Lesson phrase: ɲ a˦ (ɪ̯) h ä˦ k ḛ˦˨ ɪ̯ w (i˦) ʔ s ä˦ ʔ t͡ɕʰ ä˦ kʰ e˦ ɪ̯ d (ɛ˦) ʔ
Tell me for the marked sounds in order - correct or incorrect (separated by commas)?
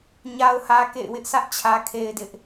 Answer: incorrect, incorrect, incorrect